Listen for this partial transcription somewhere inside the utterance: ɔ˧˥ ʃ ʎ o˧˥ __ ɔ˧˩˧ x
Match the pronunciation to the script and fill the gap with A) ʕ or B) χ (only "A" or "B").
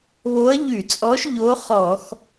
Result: B